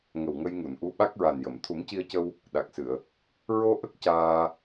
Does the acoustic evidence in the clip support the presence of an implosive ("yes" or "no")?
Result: yes